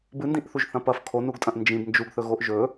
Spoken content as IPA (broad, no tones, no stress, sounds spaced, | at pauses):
b ɨ n d ĩ ʔ θ u ʒ θ ɐ̃ p ɐ f kʰ o n u ɡ tʼ ɐ̃ ʔ n d͡ʒ ĩ b n d͡ʒ u ɡ θ ɵ ɣ o ʔ ʒ ɵ